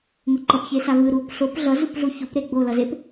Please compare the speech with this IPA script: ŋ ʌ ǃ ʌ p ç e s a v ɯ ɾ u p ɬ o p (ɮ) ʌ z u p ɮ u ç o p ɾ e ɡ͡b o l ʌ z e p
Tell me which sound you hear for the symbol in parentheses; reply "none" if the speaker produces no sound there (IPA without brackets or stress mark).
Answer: ɮ